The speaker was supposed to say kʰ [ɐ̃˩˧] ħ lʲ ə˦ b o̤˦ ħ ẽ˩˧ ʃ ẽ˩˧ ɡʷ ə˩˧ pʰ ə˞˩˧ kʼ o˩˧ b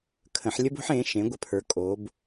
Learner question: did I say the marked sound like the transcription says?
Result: no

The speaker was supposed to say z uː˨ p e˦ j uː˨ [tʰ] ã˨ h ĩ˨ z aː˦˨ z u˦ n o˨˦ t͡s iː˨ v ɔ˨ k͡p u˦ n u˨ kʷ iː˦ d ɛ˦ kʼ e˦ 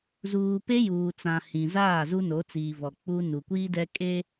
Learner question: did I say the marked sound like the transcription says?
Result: no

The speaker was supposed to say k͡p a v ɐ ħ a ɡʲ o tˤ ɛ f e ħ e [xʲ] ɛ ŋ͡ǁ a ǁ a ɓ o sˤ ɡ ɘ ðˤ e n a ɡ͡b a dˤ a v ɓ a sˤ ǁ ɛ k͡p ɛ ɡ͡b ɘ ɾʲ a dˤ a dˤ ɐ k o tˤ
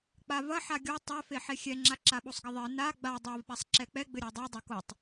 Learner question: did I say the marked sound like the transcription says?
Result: yes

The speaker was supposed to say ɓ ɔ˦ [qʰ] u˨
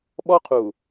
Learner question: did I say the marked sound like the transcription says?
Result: yes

